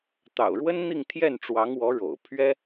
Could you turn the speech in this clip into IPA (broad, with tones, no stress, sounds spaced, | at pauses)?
t̪ ɑ̰˨˩ ʊ̯ ɻ w ə˥ n n̪ i˥˧ ŋ t̪ʰ j ɛ˥˩ n ʈ͡ʂ w ɑ˧˥ ŋ w ɔ˧˥ ɻ o̰˨˩ ʊ̯ pʰ ɥ ɛ˥